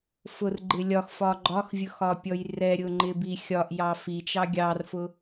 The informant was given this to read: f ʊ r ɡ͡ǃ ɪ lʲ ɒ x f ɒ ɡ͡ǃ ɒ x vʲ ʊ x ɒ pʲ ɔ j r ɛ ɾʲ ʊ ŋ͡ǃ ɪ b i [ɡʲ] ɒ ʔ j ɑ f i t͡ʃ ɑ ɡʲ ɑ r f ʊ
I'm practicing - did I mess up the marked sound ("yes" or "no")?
yes